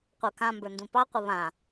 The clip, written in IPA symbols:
qʷ ə˞ k ã m b ə˞ n d ũ p ɑ qʷ ə β ã

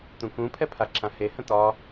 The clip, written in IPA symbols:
t̪ ũ k ũ pʰ ɛ pʰ a ǁ ã h e h ə̃ t̪ ɒ

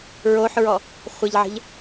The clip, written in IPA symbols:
ɹ o ħ ɹ ɔ | χʷ ə ʎ ʕ ə̤ ʎ

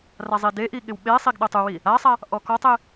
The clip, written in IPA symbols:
r a zˤ i d e ʔ i ɠ ɪ w ɓ e sˤ i ɡ ɗ ʊ tˤ u w i | a sˤ a | ʔ ɔ k ɔ tˤ e

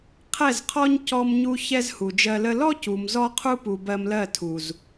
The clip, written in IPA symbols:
qʰ ɛ˦˨ z qʰ ɔ˦ ɲ c ɔ˧ m ɲ u˧ ç ɛ˦ z h u˨ d͡ʒ ɜ˧ l ə˦ l ɔ˦ c u˨ m z ɔ˦ qʰ u˦ p u˨ b ɜ˧ m l ɜ˦˨ tʰ u˨ z

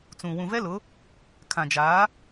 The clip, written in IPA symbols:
t͡s ũ˨ w ũ˨ v ɛ˦ l ʊ˨˦ | kʰ ã˨ d͡ʒ aː˨˦

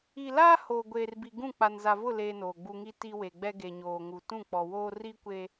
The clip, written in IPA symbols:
i˨ l aː˦ h oː˨ ɡʷ eː˨ r b i˨ ɡ ũ˦˨ k͡p a˨ n z a˨ v ʊ˦˨ l eː˦ n oː˨ ɡ͡b u˦ ŋ i˦ t i˦ w e˨ ɡ͡b ɛ˦ ɡ e˨ ɲ oː˨ ŋ u˨ t ũ˦˨ k͡p ɔ˨ w oː˦ r i˦ kʷ e˦

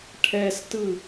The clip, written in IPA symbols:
ʈʰ ɛ s t ɯ

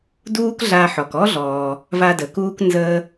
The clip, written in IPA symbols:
d uː˥ k ɮ a˧ ħ ɔ˩ k ɔ˥ ɮ ɔː˩ | v a˧ d əː˩ k uː˥ k n z əː˥

